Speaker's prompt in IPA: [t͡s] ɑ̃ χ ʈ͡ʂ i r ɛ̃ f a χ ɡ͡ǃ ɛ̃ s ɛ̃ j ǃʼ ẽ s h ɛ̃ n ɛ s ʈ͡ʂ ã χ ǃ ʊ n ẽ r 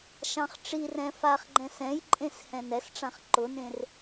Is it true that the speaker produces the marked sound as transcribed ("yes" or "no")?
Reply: no